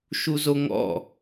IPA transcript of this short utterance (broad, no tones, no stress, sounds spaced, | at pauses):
ʃ u z o ŋ ɔ̰